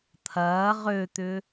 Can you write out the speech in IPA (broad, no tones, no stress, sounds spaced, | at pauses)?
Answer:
t̪ʰ ɐː ʁ ø t̪ ʏ